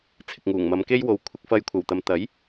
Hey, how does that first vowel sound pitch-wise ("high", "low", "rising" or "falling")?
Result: low